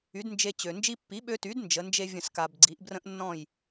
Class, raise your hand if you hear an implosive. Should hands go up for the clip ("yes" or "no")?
yes